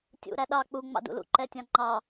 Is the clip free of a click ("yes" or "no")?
no